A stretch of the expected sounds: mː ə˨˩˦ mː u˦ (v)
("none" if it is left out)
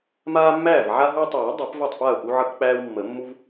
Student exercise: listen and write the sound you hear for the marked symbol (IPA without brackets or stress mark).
v